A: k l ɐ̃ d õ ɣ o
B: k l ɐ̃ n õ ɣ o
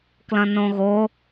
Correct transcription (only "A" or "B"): B